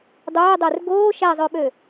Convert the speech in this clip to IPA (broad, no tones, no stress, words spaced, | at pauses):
dˤɵːdˤør ɡoː ʃæzˤøɓø